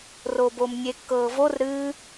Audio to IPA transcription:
r o b o m nʲ e kː ɤː v o r ɾ ɨː

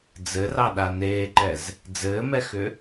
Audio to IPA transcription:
d͡z ɘ r ɑ ɗ a n eː ǃ ɛ z | d͡z ɘː m ɛ x ʏ

